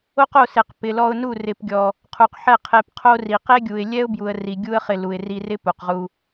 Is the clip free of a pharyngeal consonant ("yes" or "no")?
no